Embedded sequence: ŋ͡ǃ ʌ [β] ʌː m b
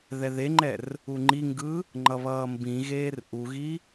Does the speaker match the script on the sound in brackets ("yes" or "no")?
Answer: yes